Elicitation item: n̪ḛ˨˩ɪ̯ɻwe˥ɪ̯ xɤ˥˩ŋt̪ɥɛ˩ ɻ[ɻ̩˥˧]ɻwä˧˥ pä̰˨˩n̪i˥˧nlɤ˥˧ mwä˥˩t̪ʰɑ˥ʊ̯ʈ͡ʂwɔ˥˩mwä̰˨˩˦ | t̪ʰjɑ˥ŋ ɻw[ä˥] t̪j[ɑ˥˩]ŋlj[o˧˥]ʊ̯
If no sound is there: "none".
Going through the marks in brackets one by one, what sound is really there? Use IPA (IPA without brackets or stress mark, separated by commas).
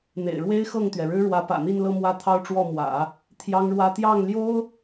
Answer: ɻ̩˥, ä˥, ɑ˥˩, o˥